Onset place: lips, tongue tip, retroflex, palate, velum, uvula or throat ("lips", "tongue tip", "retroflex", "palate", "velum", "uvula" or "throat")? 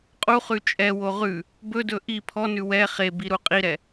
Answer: uvula